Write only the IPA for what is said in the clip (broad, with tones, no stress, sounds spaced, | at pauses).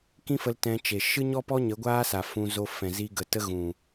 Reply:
k ĩ˦ f ə˧ l t ɛ̃˧ t͡ʃ e˨ ʃ ɨ˦ ɲ ɔ˦ p ɔ˦ ɲ ə˨˦ ɡʷ aː˦ s a˨ f ũ˧ z o˧ f ɛ̃˨ z i˧ ɡ ə˨ t ə˦ ɣ ũ˨